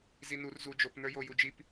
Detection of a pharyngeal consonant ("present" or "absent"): absent